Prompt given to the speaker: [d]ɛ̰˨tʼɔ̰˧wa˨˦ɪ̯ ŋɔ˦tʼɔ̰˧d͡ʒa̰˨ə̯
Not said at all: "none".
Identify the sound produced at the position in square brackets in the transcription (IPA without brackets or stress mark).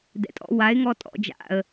d